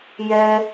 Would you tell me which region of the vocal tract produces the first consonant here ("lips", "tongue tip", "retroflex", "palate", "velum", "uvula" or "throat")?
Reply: palate